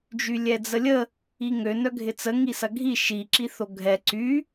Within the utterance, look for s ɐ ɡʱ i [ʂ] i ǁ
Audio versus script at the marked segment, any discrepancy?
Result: yes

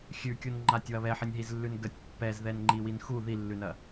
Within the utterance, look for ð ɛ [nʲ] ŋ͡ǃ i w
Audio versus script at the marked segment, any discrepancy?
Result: yes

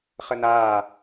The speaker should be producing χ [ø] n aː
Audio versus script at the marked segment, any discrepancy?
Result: yes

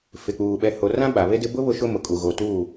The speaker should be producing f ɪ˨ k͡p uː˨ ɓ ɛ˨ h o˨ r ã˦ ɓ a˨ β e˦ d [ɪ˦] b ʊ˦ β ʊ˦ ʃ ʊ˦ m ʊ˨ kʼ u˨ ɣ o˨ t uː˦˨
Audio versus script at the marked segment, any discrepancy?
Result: no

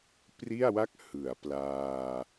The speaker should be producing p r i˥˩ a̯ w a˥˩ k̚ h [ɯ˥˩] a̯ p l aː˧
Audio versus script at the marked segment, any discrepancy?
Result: yes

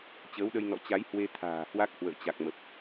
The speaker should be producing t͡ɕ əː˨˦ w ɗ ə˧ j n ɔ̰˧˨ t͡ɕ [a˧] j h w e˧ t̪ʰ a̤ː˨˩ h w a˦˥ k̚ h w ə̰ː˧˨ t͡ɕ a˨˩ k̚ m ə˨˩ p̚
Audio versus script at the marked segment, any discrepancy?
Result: yes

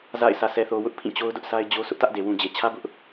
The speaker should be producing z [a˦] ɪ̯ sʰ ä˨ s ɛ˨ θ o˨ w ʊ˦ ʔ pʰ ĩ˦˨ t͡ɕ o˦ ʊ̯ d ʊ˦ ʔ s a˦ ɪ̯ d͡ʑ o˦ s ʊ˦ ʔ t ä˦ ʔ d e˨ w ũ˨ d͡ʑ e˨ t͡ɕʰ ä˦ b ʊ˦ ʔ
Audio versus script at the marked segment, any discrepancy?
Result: yes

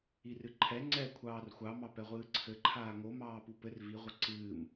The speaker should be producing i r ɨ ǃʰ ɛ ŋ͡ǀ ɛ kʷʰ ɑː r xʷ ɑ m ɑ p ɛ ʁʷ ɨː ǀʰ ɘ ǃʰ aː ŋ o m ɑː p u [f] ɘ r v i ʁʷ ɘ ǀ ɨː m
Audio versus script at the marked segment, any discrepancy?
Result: yes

